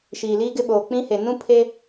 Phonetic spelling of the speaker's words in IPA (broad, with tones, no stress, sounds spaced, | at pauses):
ʃ iː˨ l iː˦ ɡ ɪ˦ ɓ oː˨ k͡p ĩ˦ h e˨ n ũ˦ pʰ e˦